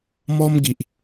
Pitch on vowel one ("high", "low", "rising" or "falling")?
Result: high